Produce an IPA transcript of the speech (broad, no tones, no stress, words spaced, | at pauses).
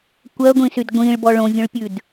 kʷɜɡʷĩsyd ɡʷĩɭbɔ ɭõvʲõɭpʲʉd